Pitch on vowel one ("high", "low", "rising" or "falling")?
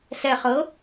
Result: low